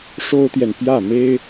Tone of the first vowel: high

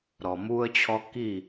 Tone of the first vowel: low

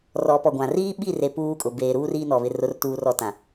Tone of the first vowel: rising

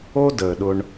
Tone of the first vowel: high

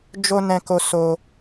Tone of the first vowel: high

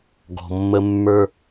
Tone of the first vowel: low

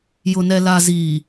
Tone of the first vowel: low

